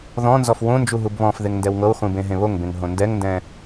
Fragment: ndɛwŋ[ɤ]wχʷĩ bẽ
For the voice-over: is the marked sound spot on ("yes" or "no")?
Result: yes